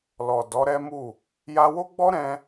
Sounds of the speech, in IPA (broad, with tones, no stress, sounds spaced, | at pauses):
l ɔ˨ d ɔ˨˦ ɾ ɛ˦ m u˦˨ | j a˧ w o˦ ɡ͡b ɔ˦ ɾ ɛ̃˦